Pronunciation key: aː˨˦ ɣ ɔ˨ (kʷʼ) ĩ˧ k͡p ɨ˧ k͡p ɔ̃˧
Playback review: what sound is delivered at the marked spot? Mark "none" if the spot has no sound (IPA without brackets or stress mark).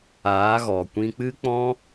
kʷ